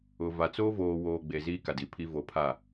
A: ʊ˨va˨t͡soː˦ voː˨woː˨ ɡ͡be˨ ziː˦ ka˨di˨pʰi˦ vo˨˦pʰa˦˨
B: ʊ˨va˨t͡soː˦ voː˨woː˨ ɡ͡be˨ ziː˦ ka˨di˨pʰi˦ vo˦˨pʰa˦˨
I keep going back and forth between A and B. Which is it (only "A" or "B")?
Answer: A